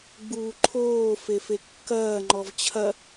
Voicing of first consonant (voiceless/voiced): voiced